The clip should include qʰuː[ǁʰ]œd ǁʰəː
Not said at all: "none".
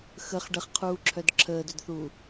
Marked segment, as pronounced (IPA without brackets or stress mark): ǁʰ